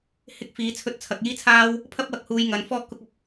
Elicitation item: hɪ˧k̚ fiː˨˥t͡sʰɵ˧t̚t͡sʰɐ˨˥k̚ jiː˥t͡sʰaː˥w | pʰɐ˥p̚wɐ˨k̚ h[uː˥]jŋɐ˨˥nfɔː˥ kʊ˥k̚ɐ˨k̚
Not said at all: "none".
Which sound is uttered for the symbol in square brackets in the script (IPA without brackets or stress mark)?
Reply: uː˧